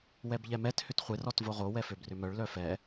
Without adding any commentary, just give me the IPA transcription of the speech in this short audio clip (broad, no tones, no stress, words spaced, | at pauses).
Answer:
wɛbʎɛmɛt hʏtχʷɪ rɔtvoʁo wɛføbrʏmœɭ lœfɛ